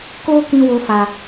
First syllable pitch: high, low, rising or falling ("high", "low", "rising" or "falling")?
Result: high